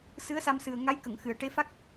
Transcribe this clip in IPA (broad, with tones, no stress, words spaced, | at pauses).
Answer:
sɨ˧˥ə̯sa˧msɨ˨˩ə̯ ŋa˧˥jkə˨˩˨ŋxɨ˨˩˨ə̯ ʈe˧˥fa˦˥k̚